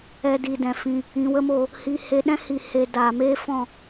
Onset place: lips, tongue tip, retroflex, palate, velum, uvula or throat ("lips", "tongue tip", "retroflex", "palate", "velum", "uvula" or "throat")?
tongue tip